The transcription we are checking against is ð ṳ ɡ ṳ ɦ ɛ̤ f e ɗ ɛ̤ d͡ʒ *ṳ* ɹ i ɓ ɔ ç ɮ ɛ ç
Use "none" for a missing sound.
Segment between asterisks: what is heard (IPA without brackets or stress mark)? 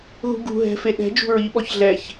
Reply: ṳ